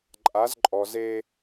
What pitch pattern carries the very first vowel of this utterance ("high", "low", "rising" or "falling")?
rising